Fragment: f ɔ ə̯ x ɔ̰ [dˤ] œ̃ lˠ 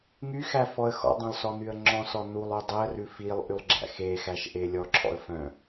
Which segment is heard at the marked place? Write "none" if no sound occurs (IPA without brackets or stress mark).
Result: dˤ